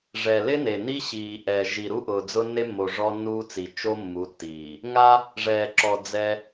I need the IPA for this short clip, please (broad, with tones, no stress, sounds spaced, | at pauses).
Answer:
ʐ ɛ˨ l ɪ˦ n e˨ n i˦ ɕ iː˨ ʔ ɛ˨ ʒ i˨ ɾ u˦ ʔ ʊː˨ d͡z ʊ˦ nː e˦ mː o˨ ʐ ɔ˦ nː uː˦ t͡s i˨ t͡ʃ o˦ mː u˨˦ tː iː˨ | ŋ a˦ | ʐ ɛː˨ ǁ ɔ˨ d͡z ɛ˦